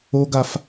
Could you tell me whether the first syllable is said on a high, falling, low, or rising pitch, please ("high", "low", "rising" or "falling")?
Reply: high